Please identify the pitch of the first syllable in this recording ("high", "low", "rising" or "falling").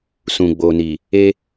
low